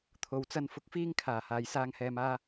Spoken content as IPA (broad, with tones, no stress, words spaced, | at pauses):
t̪ʰo˨wt͡sɐ˧n fʊ˨k̚fiː˧ŋkʰaː˨˩ haː˨jsaː˧ŋhɛː˧m aː˧